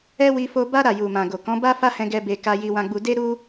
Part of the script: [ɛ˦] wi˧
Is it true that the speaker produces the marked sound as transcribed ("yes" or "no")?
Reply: yes